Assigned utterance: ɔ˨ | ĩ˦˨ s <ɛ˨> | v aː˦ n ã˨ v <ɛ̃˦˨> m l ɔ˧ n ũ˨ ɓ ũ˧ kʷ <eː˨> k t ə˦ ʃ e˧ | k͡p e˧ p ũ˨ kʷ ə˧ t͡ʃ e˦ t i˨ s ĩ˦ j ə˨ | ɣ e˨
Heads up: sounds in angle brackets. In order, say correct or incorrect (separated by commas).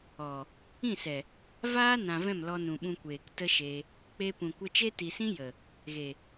correct, correct, correct